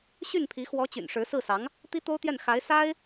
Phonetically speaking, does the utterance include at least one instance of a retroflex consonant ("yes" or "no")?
yes